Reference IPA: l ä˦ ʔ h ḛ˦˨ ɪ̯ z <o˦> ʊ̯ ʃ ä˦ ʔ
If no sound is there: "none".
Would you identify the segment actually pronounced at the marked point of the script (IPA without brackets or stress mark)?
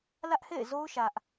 o˦